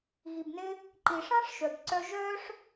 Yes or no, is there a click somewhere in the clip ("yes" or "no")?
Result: yes